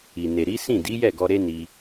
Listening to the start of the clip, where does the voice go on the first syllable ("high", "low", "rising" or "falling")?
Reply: low